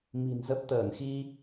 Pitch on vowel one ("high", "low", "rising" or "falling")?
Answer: low